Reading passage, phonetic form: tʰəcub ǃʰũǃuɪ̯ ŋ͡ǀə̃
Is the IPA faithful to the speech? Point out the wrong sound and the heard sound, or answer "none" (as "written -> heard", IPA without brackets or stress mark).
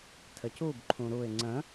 ǃ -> ɾ